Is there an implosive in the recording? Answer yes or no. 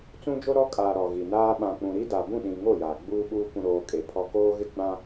yes